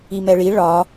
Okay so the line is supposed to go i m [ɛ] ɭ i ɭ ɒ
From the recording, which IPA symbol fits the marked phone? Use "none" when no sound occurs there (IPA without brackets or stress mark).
ɛ